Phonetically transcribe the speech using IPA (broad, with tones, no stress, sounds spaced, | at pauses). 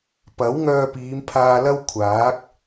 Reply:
p ɐ˨˥ w ŋ œː˧ p iː˨˧ m pʰ aː˧ l ɐ˥ w kʷʰ aː˨˥ k̚